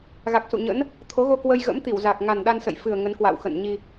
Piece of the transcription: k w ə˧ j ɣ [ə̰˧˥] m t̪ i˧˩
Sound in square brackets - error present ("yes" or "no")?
no